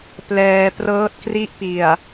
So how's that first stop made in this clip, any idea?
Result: plain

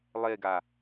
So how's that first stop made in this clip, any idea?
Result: plain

